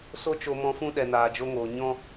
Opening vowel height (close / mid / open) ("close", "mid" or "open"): mid